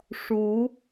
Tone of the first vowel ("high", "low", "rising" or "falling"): rising